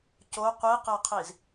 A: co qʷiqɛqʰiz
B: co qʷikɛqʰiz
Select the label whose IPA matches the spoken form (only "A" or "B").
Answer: A